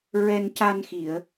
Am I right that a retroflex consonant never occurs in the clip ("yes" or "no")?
yes